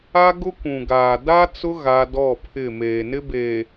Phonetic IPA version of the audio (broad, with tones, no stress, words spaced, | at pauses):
a˦ɡʊ˦kʷũ˨ ɡaː˨ da˦t͡sʊ˦ ɣa˦ dɔ˦˨pʰɪ˦˨ meː˨nɪ˦beː˨